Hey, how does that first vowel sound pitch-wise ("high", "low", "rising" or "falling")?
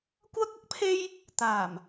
high